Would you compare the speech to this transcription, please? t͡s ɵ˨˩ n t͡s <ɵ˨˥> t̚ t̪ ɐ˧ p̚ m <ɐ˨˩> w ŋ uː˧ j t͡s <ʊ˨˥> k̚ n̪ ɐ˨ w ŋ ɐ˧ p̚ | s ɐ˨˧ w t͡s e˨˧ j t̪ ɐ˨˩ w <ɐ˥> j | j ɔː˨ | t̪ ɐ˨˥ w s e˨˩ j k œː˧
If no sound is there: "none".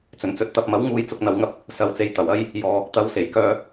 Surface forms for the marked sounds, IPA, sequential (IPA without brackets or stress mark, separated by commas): ɵ˨˥, ɐ˨˥, ʊ˨, ɐ˥